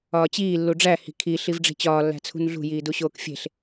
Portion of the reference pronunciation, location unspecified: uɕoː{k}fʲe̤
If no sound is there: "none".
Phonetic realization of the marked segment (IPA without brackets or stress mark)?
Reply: k